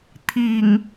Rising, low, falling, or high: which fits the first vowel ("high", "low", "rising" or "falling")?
low